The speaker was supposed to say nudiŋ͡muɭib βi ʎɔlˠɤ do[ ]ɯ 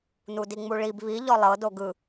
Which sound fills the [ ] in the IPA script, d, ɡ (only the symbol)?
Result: ɡ